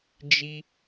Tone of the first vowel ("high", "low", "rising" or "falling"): high